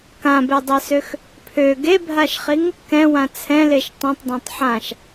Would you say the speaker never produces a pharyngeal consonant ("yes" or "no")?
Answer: no